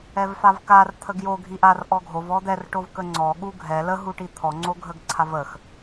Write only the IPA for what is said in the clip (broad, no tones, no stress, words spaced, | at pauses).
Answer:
ɛvfavkar t̪ʰəɡjo ɡʱiʔar ʔɔɡʱov ɔd̪ɛr ʈovkəŋ͡ǀɔ ɠuɡʱɛ lə ɦuʈit̪ʰɔ ŋ͡ǀoɡʱəɡǀʰavəx